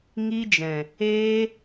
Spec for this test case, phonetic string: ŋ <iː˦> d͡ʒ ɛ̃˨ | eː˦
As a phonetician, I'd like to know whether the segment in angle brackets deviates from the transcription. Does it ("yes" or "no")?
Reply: yes